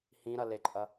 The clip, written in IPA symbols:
h ĩ ɾ ɐ l e ǃʼ ɐ

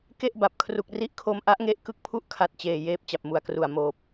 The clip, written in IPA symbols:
k e˥˩ ʔ b a˨˩ p̚ kʰ r u˨˩ k̚ r i˦˥ ʔ kʰ o˧ m ʔ a˦˥ ʔ ŋ e˦˥ ʔ k ɯ˥˩ k̚ pʰ u˥˩ ʔ kʰ a˨˩ t̚ t͡ɕ eː˨˩ j eː˦˥ p̚ t͡ɕ a˨˩ p̚ m u˨˩ a̯ k r u˨˩ a̯ m oː˨˩ p̚

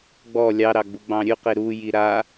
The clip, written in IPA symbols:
ɡ͡b ɔ lʲ ɑ ɾ ɑ ɡ͡b u ɡ͡b ɑ̃ ɾʲ ʉ q e ɾ u j i ɾ a

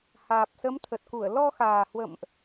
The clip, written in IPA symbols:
h aː˨˩ p̚ s ə˨˦ m t̪ʰ ə˨˩ t̚ k u˧˩ ə̯ l ɔ˧ x aː˨˩ h w ə̰˧˨ m ʔ

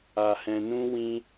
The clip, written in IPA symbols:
a˧ h ɛ̃˧ n ũ˦ w ĩ˦

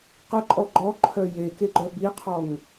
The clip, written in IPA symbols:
q ə ǃʼ ɔ ɡ͡ǃ ɔ ǃʰ œ j e k e ɡ͡ǃ œ b i qʰ ɔ ŋ

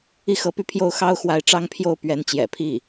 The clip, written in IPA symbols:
i˥˩ x ɤ˧˥ p y˥˧ pʰ j o˥˩ ʊ̯ x ɑ˥ ʊ̯ x w a˧˥ ɪ̯ ʈ͡ʂ ɑ˥ ŋ pʰ j o˥˩ ʊ̯ p ɥ ɛ˧˥ n t͡ɕ j ɛ̰˨˩ pʰ i˥˩

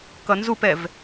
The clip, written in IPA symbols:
k ʌ n z u p ɛ v

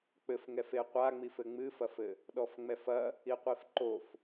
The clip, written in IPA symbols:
k͡p ɘ f ŋ ɛ f e qʷ a ŋ͡m i f ɘ ŋ͡m ɨ f ɐ f ɘ | ɗ ɔ f ŋ͡m ɛ f ɐ | i qʷ i f ǃ o f

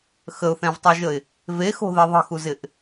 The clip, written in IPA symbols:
x ə ʊ̯ θ ɛ̃ v tˤ o ʒ ə ɪ̯ | v e x o̤ ð e ðˤ ə̤ x u z ɪ ʔ

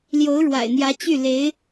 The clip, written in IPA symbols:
l j o˧˥ ʊ̯ ɻ w a̰˨˩ ɪ̯ n̪ j ä˧˥ t͡ɕ y˥˩ l e˧˥ ɪ̯

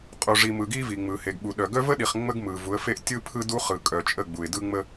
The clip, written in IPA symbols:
qʼ u˨ ʐ i˨ m ɯ˨ ɡ i˦ v i˨ ŋ͡m ɯ˨ h e˨ ɡ ɓ u˨ ɗ œ˨ ɡ œ˦ v ə˦ ɗ i˨ χ ŋ͡m ə˦ ɡ m ɯ˨ v u˨˦ ə̯ f e˦ ʔ tʲ ɯ˦ pʰ ɯ˦ d u˦ χ ɯ˨ kʼ œ˨ t͡ʃʼ ə˦˨ ɡ͡b u˨ ɪ̯ d ɯ˦ ŋ͡m ə˦

